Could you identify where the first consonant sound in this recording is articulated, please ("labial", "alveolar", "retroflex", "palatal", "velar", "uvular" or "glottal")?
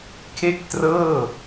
velar